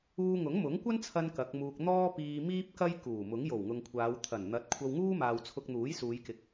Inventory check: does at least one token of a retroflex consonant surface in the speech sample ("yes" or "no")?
no